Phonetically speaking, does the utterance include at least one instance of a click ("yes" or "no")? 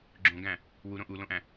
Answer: yes